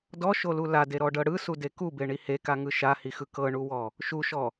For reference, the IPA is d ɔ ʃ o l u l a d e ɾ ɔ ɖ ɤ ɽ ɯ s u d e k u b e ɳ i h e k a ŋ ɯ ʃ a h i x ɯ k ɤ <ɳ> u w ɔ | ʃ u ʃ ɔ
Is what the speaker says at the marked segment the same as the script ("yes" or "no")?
yes